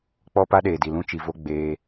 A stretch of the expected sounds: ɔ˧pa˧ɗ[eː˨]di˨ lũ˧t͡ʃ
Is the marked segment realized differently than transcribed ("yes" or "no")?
no